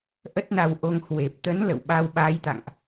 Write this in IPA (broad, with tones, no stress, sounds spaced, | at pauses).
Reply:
ʔ ə˦˥ t̚ n a˧ w ʔ o˧ ŋ h w e˨˩ p̚ t̪ ə˨˦ n l ə̰˧˨ w ɓ a˧ w ɓ a˨˦ j t̪ a̰˧˨ ŋ ʔ